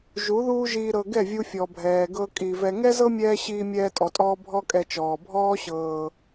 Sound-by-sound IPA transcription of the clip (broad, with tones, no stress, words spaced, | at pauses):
ʒu˨˦ ðuː˦ʒiː˧ ɾɤ˧ ɡɛ˦˨vʲu˧ fʲɔ˨bʱɛː˨ɡɤ˧ kʼi˨vɛ˧ ŋɛ˦zɤ˦ mʲɛː˦ ɕiː˧mʲɛː˧tʼɔ˨tʼɔː˧ bʱɔ˦kʼɛ˧t͡ʃɔː˨ bʱɔː˦ɕɤː˨